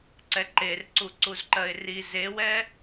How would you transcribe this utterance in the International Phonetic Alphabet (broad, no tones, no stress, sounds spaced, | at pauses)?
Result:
ǀ ɛ ǃ e r ǀ u ǀ u z ǃ ɜ ɪ̯ r i z e w ɛ